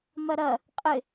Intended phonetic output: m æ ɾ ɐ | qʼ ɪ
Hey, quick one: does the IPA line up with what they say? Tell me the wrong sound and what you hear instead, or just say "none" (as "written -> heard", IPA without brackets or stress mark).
æ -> ɐ